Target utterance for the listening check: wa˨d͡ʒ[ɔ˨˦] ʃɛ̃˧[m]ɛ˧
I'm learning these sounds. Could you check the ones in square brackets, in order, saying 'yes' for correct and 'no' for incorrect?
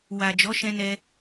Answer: yes, no

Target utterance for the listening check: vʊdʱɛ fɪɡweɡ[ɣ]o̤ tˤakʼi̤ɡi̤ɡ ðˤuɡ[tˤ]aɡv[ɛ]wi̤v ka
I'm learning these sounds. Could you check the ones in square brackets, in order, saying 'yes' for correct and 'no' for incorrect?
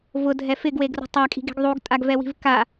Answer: no, no, yes

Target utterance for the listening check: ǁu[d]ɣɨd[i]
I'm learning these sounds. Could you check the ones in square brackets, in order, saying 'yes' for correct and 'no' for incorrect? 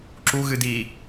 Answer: no, no

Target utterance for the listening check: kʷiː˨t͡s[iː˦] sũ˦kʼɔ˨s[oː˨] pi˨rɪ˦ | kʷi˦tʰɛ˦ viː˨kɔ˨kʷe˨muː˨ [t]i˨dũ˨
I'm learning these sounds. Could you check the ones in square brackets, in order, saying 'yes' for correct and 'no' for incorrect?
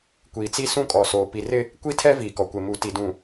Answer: no, yes, yes

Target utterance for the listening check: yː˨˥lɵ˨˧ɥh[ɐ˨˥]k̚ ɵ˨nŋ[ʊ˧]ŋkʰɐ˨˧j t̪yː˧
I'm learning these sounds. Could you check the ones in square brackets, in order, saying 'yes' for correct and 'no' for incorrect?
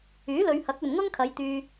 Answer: yes, no

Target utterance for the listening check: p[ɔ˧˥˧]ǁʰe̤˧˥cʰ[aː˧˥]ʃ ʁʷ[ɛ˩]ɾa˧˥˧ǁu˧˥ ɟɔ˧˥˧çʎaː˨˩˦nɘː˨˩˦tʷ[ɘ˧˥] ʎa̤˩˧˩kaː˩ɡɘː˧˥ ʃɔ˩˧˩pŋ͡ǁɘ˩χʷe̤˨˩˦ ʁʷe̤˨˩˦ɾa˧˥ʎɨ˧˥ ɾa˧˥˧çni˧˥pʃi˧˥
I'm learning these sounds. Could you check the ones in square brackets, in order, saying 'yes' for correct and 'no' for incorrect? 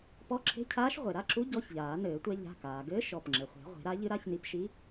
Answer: yes, yes, no, no

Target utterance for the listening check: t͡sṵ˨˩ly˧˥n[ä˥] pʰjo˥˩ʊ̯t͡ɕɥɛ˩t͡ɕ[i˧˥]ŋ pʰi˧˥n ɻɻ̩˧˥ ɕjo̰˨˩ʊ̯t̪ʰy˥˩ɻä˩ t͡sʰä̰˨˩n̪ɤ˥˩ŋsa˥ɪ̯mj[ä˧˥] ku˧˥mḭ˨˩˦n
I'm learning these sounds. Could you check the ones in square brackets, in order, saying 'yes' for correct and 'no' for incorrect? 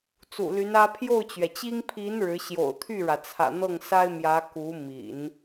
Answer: yes, no, yes

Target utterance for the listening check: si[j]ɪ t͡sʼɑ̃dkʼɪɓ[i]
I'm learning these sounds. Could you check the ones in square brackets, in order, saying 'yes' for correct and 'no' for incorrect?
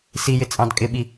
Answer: yes, yes

